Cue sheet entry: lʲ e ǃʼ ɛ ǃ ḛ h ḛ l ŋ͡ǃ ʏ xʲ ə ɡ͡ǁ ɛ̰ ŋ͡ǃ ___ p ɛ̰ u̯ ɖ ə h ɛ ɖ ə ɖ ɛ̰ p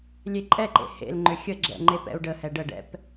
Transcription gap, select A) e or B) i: A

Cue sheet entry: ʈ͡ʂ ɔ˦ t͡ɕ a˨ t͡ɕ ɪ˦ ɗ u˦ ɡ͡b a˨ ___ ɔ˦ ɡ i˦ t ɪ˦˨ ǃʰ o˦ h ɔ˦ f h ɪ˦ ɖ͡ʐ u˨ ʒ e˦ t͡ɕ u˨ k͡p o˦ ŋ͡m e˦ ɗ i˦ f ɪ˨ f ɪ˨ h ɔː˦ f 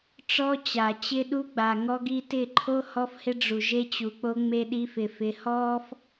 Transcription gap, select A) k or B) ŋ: B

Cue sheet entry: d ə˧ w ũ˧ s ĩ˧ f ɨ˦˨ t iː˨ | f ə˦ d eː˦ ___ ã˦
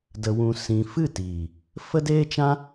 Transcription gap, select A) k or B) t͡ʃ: B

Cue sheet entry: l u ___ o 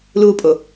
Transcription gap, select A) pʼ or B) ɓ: A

